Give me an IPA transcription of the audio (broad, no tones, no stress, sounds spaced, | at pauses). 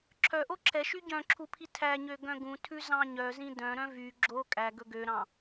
ǁʰ œ ʔ o ǁʰ ɛ ʃ y ɟ œ̃ ǁʰ u pʰ i tʰ æ ɲ ø ɡ œ̃ ɡ ũ tʰ ʉ z ɑ̃ ɲ œ z ĩ d œ̃ ɾ œ̃ v y ɡ͡ǁ o kʼ æ ɡ ɵ ɡ ø ɾ ɑ̃